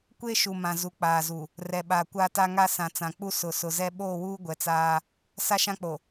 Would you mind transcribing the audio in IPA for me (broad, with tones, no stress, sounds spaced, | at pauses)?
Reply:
kʷ e˦ ʃ u˨ m ã˨ z u˨ k͡p aː˨ z u˨ | r ɛ˨ ɓ aː˨ kʷ aː˦ t a˦ ŋ a˦ s ã˨ t͡s ã˨ k͡p u˦ s ʊ˨ s ʊ˨ z ɛ˦ ɓ oː˦˨ w uː˦ ɡʷ ɛ˨ t͡s aː˦ | s a˦ ʃ ã˦ k͡p o˨